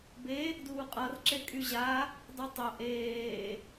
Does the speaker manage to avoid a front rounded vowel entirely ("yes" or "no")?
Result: no